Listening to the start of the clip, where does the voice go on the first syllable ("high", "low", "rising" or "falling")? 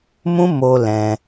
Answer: high